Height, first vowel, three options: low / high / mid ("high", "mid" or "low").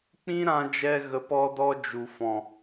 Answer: high